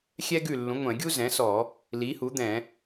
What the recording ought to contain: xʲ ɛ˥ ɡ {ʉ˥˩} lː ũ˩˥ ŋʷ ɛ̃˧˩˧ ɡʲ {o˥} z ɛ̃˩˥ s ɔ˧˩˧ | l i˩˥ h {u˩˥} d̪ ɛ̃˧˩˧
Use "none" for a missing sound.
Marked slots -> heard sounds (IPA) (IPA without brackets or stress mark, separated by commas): ʉ˥˩, u˥, u˩˥